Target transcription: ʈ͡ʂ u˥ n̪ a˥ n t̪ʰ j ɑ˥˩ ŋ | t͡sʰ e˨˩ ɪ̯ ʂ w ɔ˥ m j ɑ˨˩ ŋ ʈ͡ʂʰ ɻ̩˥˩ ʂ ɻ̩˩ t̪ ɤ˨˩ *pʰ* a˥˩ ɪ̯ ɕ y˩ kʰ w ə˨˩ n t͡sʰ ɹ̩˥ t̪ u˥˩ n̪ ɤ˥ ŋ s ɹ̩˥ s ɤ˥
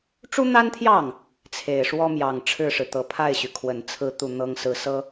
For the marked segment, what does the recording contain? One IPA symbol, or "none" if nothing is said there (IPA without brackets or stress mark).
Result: pʰ